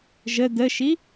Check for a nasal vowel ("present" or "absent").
absent